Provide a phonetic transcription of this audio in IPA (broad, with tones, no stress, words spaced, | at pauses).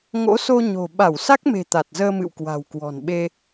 ŋo̰˧˥so˧ ɲo̤˨˩ ɓa˧˩wsa˦˥k̚me̤˨˩ t̪a˨˩t̚zəː˧mɨ̰˧˨w kwa̤˨˩wkwɔ̤˨˩nɓe˧